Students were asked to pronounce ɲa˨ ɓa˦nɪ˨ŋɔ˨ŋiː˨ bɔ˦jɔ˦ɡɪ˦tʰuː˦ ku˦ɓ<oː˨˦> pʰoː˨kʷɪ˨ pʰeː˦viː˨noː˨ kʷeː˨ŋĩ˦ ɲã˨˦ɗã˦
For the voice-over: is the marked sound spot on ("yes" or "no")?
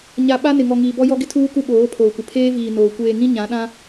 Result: yes